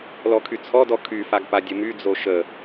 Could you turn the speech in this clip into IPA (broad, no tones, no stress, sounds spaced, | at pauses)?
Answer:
l ɔ kʰ y t͡sʰ ɔ d ɔ kʰ y f a ɡ p a dʲ ə m y d͡z o ʃ ə